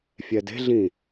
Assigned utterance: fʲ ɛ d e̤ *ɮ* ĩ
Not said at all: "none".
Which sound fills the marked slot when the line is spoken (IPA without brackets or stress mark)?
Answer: ɮ